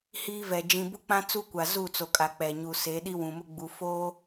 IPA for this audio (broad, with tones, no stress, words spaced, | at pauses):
hiː˦vɛ˨ d͡ʒĩ˨bʊ˦k͡pã˦ t͡su˦kʷa˨ zu˦˨t͡so˨kʼa˨ k͡pɛ˨ ɲu˨se˨˦ ɗi˦wũ˨mʊ˦ɡ͡bu˨ foː˦